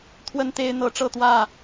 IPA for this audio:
t̪ʰwə˦nt̪e˦ɪ̯n̪ɤ˨˦ ʈ͡ʂɤ˥˨t̪wä˥˨

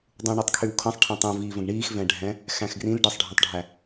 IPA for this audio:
dˤũɳitˤ kʰywkʰə̃sˤ ʈʰɛ̃tˤũviːvə̃ɡ ɳiːxvɛ̃ɖʱɛ̃ | xæ̃xɡrĩl ɖɛsˤɖʱĩtˤɖʱæ

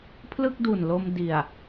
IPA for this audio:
pʰlɯ˥˩k̚du˨˩nlo˧m di˨˩a̯

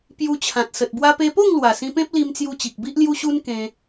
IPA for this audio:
pju˧t͡ɕʰã˨t̚sə˨t̚ bwa˧pe˧po˥˧ŋlwa˨˩ sĩ˧pẽ˦p̚li˧mt͡sju˧ t͡ɕi˨k̚bi˦ʔlju˦ɕu˦n kẽ˧

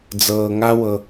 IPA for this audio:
d͡zɤː˩ŋa˧ wɤ˩

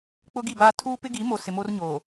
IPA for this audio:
k͡pʊ˦ɡi˦˨baː˦ tʰuː˦ pɪ˦ɡi˨˦mo˨ sɪ˨mo˦rɲoː˨

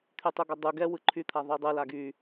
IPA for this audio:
t̪ʰytˤuɡɔdˤu ɡɛ wɯǃʰyt̪ʰa ðˤɯdˤɯ laɡy

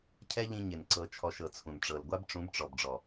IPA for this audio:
cʰɛ˦ʎĩ˧ ɲɪ˨n ǀɤ˨t͡ʃʰɔ˨ʃ ɤ˨t͡sʰũ˨n ʈ͡ʂɤ˨lɡʷa˦bʈ͡ʂũ˨˦bʈ͡ʂɔ˨b ɖ͡ʐɔ˨

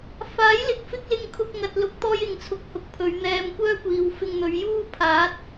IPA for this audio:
faː˨˥j lɪ˨˥k̚fɪ˥k̚lɪ˧ŋkʰʊ˧k̚ ŋɐ˨t̚ lʊ˨˥k̚t̪ɔː˧jɪ˨ŋt͡sʰʊ˨˥k̚ hʊ˨˥k̚pʰɵ˨˧ɥ n̪ɛː˧mkʷœː˥ kʷiː˨w fɪ˧ŋn̪ɵ˨˧ɥ juː˥pʰaː˨˥t̚

